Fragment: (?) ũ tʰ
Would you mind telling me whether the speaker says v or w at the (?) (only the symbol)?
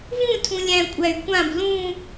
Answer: v